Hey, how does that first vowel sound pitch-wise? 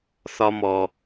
high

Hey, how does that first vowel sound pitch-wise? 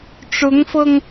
rising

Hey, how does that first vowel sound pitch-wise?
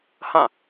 falling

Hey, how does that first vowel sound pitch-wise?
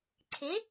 rising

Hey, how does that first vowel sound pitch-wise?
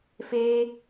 high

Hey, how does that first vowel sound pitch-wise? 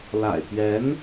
low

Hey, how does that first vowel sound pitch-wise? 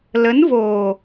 rising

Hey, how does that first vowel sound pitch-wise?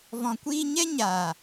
low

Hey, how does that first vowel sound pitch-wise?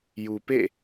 low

